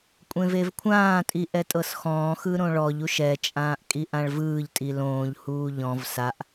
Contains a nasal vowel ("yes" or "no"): yes